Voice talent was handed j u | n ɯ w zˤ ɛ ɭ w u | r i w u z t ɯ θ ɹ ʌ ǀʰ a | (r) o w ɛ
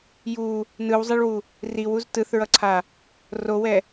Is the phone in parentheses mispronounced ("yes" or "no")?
no